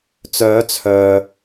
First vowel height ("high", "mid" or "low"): mid